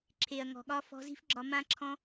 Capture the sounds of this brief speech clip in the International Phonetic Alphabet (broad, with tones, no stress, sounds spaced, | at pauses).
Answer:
ǁʰ e˨ ɐ̯ ŋ ɔ̤˨ ɠ ɒ˦ f ɔ̤˧ z i̤˦ f ɡ͡ǁ ɒ˧ m ã˦ ǁʰ ɔ̃˦